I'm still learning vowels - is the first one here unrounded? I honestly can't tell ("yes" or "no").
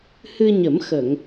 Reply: yes